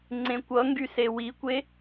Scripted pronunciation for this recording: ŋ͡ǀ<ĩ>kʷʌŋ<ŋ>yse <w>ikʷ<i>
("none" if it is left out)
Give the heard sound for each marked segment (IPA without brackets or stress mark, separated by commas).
ẽ, ɡ, w, e